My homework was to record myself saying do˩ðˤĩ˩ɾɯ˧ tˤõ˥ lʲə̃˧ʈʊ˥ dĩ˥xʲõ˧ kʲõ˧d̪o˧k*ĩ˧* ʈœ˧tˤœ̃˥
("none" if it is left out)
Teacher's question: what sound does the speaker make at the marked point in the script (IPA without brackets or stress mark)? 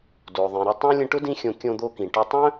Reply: ĩ˩